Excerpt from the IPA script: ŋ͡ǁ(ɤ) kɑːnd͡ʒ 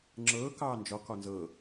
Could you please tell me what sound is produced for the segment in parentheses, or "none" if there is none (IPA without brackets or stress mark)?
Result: ɤː